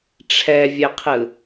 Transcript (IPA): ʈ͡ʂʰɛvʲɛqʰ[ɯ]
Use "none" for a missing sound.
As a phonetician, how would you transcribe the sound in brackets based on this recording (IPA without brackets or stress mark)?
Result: ɯ